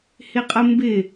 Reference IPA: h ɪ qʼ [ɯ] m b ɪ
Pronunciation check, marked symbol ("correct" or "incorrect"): incorrect